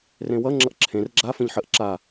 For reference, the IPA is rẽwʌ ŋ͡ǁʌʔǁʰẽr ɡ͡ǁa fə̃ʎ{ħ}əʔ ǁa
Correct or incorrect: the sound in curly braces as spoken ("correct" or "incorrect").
correct